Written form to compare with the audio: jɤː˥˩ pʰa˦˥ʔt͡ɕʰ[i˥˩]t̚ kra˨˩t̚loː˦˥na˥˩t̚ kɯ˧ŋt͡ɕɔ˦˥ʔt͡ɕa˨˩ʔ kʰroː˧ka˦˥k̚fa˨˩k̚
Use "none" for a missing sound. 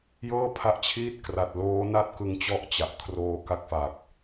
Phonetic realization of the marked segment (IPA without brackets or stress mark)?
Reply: iː˥˩